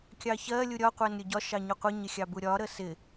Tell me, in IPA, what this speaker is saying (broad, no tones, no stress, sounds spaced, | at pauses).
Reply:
kʲ ɑ ç ɜ lʲ u ɾʲ ɒ qʷ æ n ɾʲ ʊ ɟ ɒ ʃ ɑ ɲ ʊ qʷ ɪ ɲ ɪ xʲ ɑ b u ɾʲ ɒ ɾ ə s ɪ